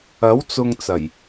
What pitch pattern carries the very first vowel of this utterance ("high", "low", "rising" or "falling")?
rising